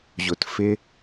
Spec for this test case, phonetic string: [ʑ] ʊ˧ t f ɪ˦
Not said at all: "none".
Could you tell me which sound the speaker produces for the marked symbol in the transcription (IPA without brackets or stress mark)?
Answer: ʑ